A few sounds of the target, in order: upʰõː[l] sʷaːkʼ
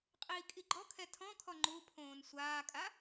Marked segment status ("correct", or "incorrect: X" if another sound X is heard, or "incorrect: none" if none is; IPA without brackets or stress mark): incorrect: n